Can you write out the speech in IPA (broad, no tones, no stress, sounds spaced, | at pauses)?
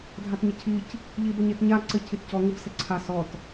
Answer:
dʱ a t ɲ ə cʰ i c | ʎ i b ə ɲ e t ɲ a ǀ ɘ cʰ i t c ɔ ŋ ɯ b s ɘ ǀʰ a s ɔ t